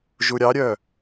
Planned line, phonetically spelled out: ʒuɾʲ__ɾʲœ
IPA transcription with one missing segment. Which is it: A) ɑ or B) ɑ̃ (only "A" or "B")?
A